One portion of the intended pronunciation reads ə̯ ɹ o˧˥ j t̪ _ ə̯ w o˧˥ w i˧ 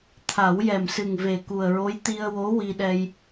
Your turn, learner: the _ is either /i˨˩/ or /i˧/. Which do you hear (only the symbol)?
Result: i˧